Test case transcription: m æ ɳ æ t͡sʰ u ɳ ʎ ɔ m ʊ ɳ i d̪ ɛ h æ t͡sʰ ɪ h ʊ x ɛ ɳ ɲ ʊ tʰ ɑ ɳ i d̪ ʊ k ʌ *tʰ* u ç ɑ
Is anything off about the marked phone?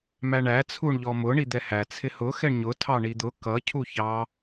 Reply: yes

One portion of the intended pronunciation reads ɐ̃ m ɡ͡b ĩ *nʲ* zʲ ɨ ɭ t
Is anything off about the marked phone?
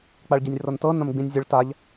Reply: no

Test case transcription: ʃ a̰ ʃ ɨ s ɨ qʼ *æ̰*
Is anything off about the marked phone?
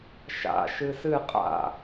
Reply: yes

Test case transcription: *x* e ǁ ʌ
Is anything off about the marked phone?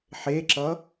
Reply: yes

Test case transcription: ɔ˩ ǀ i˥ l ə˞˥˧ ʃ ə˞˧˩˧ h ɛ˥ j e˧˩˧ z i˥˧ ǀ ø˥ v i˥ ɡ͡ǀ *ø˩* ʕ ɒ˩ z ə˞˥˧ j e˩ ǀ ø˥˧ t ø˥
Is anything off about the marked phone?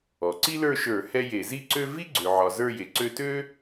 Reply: no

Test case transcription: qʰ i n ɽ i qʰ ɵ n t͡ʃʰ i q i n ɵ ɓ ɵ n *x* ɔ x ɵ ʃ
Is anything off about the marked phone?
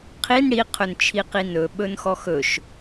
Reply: no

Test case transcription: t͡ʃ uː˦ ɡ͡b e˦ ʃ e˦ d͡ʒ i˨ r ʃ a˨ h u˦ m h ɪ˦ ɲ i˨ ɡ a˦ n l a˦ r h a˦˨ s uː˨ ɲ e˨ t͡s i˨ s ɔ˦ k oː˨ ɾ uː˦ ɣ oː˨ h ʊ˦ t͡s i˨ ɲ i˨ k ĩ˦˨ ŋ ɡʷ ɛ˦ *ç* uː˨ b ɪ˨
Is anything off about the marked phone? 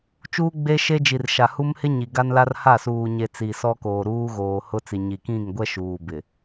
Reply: yes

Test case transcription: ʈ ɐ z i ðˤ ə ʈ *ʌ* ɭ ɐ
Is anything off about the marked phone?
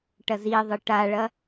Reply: yes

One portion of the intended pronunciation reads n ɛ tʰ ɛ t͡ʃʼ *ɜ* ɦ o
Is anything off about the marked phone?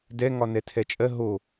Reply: no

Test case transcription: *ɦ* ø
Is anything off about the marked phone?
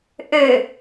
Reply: yes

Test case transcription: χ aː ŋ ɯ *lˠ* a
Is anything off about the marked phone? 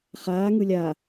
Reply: yes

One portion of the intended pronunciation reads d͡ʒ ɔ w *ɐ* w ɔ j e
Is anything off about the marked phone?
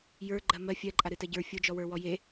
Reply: yes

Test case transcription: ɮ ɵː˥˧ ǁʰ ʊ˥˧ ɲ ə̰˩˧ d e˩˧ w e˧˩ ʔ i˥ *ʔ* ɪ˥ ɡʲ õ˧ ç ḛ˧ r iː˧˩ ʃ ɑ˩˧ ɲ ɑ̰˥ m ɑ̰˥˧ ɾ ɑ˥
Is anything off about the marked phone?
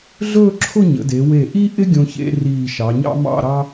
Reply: no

